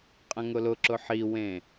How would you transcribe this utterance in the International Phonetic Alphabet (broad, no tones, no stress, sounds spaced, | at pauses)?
qʼ ɐ̃ ŋ ʊ l ʊ ǁ ʊ ħ i w ẽ